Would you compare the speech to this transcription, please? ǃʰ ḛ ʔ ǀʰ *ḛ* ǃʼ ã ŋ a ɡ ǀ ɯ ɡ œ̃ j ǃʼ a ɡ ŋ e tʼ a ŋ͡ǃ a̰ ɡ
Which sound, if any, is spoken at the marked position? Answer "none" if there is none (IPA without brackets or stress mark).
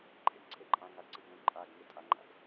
e